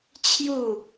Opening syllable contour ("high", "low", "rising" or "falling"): falling